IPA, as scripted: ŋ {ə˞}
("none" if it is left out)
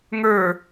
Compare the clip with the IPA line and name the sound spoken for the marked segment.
ə˞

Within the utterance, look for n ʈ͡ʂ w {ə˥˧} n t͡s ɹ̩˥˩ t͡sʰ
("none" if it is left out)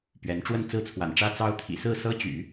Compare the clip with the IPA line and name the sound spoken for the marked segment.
ə˥˧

